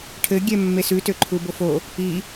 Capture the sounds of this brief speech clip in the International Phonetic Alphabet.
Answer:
ʈʰ ɘ ɡʲ ɛ mː e s ʉ t ø ǃʰ u b o f o | i

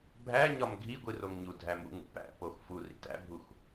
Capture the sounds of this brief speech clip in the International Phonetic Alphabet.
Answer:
bʱ æ ɲ ɒ m ɡʱ i ɡʷ i r o ŋ ɲ u dʱ æ m ṵ ŋ ṵ p æ̰ p o x f u r ḭ t æ̰ bʱ u x

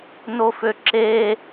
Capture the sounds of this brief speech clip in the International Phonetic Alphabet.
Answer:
n o f ø ǁ e

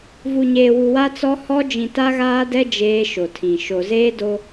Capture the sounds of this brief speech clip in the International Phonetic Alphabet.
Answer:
v u˨ ɲ eː˨ w u˨ w a˦ t͡s ɔ˦ h ɔ˦ d͡ʒ ĩ˨ t a˦ ɣ aː˦ d ɛ˦ d͡ʒ eː˦ ʃ o˨ tʰ ĩ˨ ʃ o˨ z eː˦ d o˦

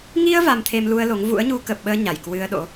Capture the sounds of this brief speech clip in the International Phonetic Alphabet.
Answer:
ŋ i˧ ə̯ v a˧ m t̪ʰ e˧ m l u˧ ə̯ l o˨˦ ŋ v ṵ˧˥ ə̯ ɲ u˧ k ə˨˩ p̚ ɓ əː˧ ɲ a˧˩ j k w ɨ˧ ə̯ ɗ o̰˧˥

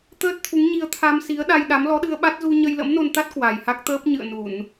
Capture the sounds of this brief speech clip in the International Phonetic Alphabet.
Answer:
t̪ əː˦˥ t̚ t̪ʰ u˨˦ ŋ ɲ i˧ ə̯ t̪ʰ a˧ m s i˨˦ ə̯ ɗ a˧ j ɗ a˨˦ m l ɔ˨˦ ɗ ɨ˧ ə̯ ɓ a˦˥ t̚ z u˧ ɲ ə˧ j l ə̰˧˥ m n o˧ n t̪ a˦˥ t̚ k w a˨˩ j h a˦˥ k̚ t̪ əː˦˥ p̚ ɲ ɨ̰˧˨ ə̯ n u˧˩˨ n

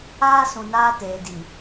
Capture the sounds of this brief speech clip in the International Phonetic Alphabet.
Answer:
aː˦ s ũ˨ n aː˦ t eː˨ d i˨

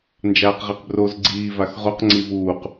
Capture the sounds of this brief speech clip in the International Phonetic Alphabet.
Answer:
n d͡ʒ aː q ʁ e q b r o z ɡ͡ǀ iː v a x ʁ o q ŋ͡ǀ i v uː q

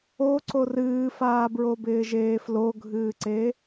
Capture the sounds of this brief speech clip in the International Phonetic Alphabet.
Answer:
o ǀ o r ɨː f aː b ɹ o b ɪː ʒ eː f l o ɡʱ ɨː ǀ e

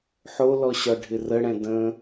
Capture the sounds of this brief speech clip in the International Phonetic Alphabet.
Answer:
ħ o l ɔ ɕ ɒ ɖʱ ɪ r ə ɽ ɛ̃ d ə̃

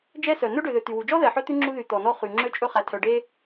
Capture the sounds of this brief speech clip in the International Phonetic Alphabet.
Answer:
d͡ʒ ɛ˥ s œ˩ n ɵ˥ ɖ ø˩ ð ø˩ t̪ y˩ w u˩ d͡ʒ ɔ˥ ð ɛ˩ ħ œ˥ t̪ ʉ˥ ŋ͡ǁ u˥ ð y˩ t̪ ɔ˩ n ɔ˥ χ y˩ ŋ͡ǁ ø˥ t͡ʃʼ ɵ˥ χ æ˩ tʰ œ˩ ɖ e˥

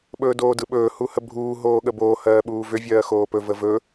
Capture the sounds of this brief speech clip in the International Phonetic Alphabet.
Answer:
ɓ ɵː d oː d ɯ ɓ ɵː h u h ə bʱ uː ɦ oː ɠ ə b oː h ɜː ɓ uː v ʏ vʲ ɜː x oː p ɵ v ə v ɵ

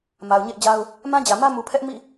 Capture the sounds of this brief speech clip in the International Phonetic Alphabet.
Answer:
m a˨ ʊ̯ ɲ ḛ˦˨ ɪ̯ d͡ʑ a˦ ʊ̯ | m ã˦ d͡ʑ ä˨ m ä˦ m u˨ pʰ ɛ˦ ʔ m ḭ˦˨

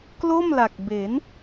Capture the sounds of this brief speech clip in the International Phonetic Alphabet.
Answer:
k l o˥˩ m l a˨˩ k̚ b e˩˦ n

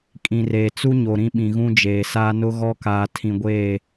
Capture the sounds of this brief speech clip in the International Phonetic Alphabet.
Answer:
kʼ ĩ˨ r eː˨ t͡s u˦ ɲ o˨ ɾ ĩ˦ ɓ ĩ˨ ɣ ũ˦ d͡ʒ eː˨ s aː˦ n ʊ˦ ɣ ɔ˦ k aː˨ tʰ ĩ˨ ɡʷ eː˦˨

